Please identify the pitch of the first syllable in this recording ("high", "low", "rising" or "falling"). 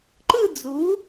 falling